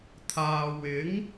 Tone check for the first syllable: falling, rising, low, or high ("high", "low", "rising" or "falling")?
low